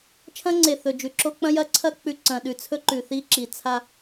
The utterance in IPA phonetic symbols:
t͡ʃʰɐ̃˦ŋ͡ǀe˨ θɵ˨d͡ʒʉ˨ǁo˦ k͡pɐ̃˦jɐ˦ǀʰɐ˦ k͡pʉ˨ ǀɐ̃˨ ɗʉ˨ t͡sʰɵ˦ǃʉ˨θi˦ ǁi˨t͡sʰa˦

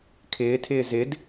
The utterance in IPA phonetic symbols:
kʰɪːtʰɪː zɪd

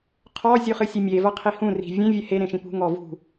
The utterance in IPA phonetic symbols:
qʰɔ zʲuχɨsʲɛmʲe vɐqʰihũ ri̤vʲẽ vʲɛhe ɾẽʃĩpṳ ŋɔvṳ

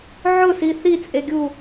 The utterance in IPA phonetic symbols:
ʕʊsi θit͡sʼeɡʲu

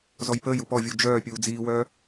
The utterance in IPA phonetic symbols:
zɔjpəːju pɔvʲu d͡ʒœːpʲuː d͡ziːwœː

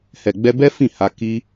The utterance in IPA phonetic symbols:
hɛ˨ ɡ͡bɛ˧bɛ˦ fĩ˦˨ha˧ ki˧

